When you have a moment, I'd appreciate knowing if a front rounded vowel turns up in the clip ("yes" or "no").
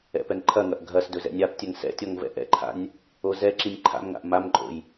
no